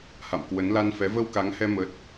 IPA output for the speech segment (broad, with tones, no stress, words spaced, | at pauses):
ha̰˧˨mkwə˨˦n la˧nfɛ˨˦ və˧wka˨˦ŋhɛ˧ mə˦˥t̚